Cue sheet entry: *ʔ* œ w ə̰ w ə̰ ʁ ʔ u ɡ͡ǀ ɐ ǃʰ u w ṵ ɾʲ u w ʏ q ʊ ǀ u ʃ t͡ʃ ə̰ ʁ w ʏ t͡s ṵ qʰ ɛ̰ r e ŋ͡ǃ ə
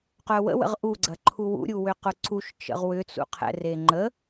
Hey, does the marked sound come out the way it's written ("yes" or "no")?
no